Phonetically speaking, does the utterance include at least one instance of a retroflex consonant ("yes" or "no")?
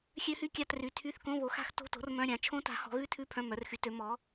no